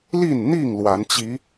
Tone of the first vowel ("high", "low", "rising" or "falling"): falling